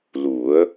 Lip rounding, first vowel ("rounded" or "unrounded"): rounded